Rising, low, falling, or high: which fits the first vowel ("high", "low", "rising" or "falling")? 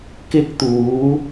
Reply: high